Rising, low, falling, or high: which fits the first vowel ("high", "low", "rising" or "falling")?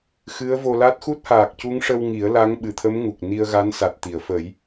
rising